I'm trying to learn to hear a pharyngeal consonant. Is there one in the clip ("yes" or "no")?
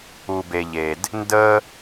no